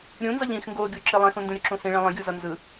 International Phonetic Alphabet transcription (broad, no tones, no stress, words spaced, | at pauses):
ɾʲũnzʌʎ ĩx ŋɡoɡʲu ǁelˠɛ̃xũ ndũɾʲuǁũsĩ ɭɛ̃lˠɛ̃ɡʲuzʌ nzɯ